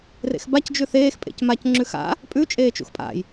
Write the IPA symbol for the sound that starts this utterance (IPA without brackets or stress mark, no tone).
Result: r